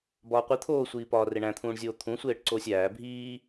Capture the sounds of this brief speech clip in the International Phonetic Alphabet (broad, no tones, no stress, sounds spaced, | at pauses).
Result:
b ɒː qʷ i t̪ʰ oː sʷ iː p ɒː r e ɳ æ̃ t̪ʰ ũː ɳ zʲ oː t̪ʰ ũ sʷ eː ʈ ǀ oː sʲ æː bʱ iː